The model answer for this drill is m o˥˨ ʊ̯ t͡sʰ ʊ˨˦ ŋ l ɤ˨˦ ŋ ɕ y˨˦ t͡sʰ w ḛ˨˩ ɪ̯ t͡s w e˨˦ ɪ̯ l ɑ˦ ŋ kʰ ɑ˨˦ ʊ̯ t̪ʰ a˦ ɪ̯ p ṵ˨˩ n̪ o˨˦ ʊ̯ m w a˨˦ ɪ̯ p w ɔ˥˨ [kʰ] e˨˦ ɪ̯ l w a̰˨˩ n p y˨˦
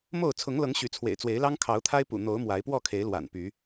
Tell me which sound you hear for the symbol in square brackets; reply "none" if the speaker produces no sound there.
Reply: kʰ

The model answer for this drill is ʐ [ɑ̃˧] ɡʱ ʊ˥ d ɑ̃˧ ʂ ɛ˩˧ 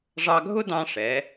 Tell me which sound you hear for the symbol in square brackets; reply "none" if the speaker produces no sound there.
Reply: ɑ˧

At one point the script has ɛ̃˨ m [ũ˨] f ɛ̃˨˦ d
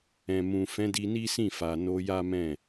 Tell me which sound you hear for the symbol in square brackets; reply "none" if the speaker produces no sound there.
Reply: ũ˨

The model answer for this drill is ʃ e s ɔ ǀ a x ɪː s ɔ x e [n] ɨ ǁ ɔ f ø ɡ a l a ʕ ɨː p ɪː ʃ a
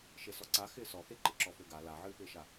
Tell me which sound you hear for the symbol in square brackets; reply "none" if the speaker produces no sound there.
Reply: ǃ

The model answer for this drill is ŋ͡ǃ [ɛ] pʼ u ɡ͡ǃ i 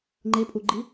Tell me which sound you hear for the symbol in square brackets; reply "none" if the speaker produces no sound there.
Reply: e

